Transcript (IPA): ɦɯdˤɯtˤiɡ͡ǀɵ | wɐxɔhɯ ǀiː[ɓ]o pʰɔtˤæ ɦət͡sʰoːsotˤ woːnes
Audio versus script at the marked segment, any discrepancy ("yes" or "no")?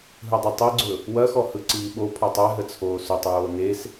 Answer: no